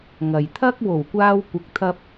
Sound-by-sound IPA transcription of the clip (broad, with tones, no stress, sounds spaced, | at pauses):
ŋ ɐ˨ j t̪ʰ ɐ˥ k̚ w o˨˩ w kʷ aː˧ w kʷ ɪ˨ k̚ t̪ʰ ɐ˧ p̚